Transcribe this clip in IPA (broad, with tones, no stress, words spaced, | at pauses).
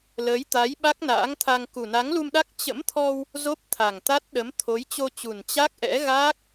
ləː˨˦jt̪a˨˦j ɓa˦˥k̚na̰ː˧˥ŋt̪ʰa˧ŋ ku˨˩na˨˦ŋlu˧mɗa˦˥k̚ t͡ɕə̰˧˥mt̪ʰɔ˧w | zo˦˥p̚t̪ʰa˨˩ŋt̪a˦˥t̚ ɗə˨˦mt̪ʰo˨˦j t͡ɕo˧t͡ɕu˨˩n t͡ɕa˦˥k̚ʔɛ̰˧˥ɣaː˦˥k̚